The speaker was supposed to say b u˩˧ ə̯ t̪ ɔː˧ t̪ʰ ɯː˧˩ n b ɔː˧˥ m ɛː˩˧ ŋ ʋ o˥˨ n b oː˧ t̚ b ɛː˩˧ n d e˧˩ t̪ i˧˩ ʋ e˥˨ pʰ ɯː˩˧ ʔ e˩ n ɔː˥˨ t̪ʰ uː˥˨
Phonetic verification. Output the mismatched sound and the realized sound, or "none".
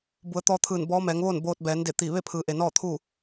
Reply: o˥˨ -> oː˥˨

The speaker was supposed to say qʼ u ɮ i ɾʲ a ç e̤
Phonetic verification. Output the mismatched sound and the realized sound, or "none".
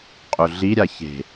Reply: none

